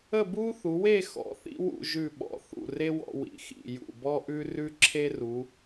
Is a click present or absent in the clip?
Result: present